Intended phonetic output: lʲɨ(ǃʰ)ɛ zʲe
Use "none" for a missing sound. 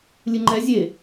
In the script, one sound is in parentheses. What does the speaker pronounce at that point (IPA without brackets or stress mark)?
ŋ͡ǃ